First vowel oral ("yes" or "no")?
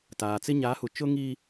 yes